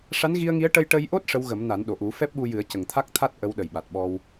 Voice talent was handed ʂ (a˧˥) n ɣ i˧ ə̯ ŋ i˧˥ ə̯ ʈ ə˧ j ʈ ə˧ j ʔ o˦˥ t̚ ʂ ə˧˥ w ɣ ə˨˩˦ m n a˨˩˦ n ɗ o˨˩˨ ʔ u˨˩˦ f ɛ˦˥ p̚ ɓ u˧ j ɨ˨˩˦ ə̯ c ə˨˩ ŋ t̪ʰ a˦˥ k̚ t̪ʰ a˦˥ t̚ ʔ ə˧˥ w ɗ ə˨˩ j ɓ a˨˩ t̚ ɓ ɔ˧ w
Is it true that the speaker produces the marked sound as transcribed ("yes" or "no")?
yes